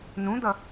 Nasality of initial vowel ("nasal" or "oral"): nasal